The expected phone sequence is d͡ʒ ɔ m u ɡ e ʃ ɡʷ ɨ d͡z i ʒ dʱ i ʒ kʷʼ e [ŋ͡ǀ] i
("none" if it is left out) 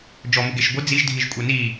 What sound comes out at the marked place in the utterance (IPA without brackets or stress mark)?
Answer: n